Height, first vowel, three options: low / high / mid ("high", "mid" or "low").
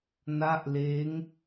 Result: low